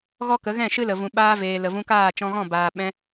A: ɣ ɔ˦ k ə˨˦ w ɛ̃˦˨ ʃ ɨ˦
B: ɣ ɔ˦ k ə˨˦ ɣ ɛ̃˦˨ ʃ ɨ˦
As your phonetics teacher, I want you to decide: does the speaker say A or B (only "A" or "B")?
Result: B